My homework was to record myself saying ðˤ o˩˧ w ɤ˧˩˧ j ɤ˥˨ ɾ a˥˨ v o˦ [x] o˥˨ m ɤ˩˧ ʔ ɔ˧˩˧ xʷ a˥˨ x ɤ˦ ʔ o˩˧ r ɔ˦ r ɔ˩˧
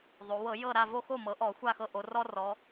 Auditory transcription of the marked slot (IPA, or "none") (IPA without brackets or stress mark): x